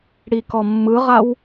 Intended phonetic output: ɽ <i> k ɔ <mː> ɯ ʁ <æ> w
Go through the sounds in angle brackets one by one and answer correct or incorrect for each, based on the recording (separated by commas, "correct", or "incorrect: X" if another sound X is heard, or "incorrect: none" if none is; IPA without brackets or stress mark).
correct, correct, incorrect: a